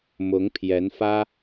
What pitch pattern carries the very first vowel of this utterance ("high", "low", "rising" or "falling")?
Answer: rising